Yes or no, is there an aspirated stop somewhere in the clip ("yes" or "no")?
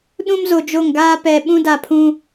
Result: yes